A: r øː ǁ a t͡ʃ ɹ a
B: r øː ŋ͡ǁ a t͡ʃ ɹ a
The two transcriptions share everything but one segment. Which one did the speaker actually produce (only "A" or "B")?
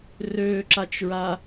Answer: A